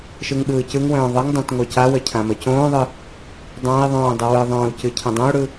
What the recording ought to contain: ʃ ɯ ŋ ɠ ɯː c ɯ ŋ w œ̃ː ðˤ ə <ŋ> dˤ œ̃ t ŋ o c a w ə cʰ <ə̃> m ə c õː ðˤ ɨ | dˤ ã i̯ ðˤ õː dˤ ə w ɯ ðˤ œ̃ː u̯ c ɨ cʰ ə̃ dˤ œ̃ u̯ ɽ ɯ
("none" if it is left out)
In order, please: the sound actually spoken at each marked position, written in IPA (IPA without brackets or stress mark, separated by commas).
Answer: ŋ, ã